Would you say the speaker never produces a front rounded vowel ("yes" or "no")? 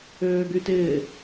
no